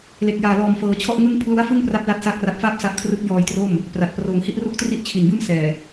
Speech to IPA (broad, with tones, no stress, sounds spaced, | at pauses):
l e˨˩ k̚ j aː˨˩ l ɔː˨˩ m f ɤː˩˦ t͡ɕʰ ɔ˥˩ ʔ ŋ ɯ˥˩ ŋ pʰ l u˦˥ a̯ f ɯ˥˩ ŋ p r a˦˥ p̚ l a˦˥ t̚ s a˦˥ k̚ r a˦˥ p̚ f aː˥˩ p̚ s a˦˥ ʔ kʰ r ɯ˦˥ k̚ j ɔː˧ j t r o˥˩ m | p r a˨˩ t̚ p r oː˧ ŋ h i˥˩ ʔ r u˥˩ k̚ t r i˥˩ ʔ t͡ɕʰ i˨˩ n b ɯː˥˩ m s ɛː˨˩